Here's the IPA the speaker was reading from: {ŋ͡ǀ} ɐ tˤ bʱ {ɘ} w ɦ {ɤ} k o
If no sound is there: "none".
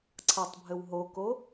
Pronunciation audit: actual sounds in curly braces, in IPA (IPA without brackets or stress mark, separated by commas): ǀʰ, ɘ, o